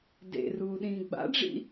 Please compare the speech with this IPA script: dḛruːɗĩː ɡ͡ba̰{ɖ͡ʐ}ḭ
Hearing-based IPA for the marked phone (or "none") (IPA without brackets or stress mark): ɖ͡ʐ